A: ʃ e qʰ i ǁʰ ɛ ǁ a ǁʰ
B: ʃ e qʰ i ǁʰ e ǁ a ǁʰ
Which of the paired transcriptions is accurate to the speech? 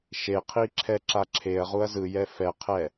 A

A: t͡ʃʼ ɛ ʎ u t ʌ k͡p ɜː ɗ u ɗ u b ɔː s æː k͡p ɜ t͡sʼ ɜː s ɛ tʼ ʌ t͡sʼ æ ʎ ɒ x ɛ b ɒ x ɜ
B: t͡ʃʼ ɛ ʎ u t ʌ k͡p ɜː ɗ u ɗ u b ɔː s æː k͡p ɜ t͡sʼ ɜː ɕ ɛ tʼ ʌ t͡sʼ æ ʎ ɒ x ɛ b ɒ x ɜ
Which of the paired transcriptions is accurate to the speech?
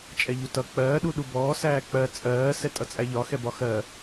A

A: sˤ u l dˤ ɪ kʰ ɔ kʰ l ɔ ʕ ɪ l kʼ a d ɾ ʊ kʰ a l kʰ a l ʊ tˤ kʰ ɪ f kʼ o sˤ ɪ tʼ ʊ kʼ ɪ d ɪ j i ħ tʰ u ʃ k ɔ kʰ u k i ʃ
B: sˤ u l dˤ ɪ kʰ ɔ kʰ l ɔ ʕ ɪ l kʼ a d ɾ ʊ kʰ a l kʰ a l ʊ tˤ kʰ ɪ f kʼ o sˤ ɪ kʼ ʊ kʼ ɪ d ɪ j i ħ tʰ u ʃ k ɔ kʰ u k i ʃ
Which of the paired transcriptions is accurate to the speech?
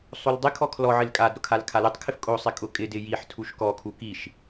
B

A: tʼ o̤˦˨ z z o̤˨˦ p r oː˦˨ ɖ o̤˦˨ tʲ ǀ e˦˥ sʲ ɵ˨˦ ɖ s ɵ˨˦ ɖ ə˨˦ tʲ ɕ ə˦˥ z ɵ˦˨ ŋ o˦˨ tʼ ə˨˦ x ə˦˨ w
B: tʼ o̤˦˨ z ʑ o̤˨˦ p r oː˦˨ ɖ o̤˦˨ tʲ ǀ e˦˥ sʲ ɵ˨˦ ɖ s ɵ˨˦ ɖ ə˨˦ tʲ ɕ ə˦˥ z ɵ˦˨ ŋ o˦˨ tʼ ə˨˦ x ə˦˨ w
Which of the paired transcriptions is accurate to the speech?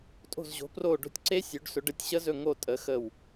B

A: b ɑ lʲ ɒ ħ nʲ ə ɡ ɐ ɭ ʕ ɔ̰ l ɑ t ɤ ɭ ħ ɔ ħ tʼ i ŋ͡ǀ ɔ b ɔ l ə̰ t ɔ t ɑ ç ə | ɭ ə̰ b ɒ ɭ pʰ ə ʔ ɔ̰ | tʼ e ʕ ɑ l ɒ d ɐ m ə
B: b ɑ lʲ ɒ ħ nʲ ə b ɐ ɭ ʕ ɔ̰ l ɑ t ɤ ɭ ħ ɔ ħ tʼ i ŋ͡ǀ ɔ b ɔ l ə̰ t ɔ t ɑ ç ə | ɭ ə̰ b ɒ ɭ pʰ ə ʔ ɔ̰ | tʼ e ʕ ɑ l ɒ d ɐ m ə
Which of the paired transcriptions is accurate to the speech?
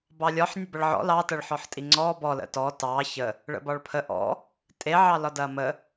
B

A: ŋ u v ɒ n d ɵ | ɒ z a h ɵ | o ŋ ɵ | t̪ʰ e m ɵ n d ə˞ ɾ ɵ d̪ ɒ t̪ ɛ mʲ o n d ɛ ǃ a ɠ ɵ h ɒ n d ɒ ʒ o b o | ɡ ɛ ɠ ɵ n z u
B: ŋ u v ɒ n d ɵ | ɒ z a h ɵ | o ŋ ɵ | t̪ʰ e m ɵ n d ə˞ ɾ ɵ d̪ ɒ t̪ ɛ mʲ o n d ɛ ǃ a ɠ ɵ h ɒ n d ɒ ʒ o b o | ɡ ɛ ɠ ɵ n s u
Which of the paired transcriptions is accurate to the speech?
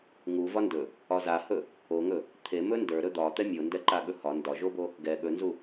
A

